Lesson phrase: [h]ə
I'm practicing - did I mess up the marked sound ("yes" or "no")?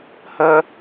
no